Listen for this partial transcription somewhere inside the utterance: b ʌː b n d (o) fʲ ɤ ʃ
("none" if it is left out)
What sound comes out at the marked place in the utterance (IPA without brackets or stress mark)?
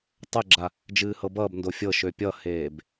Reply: o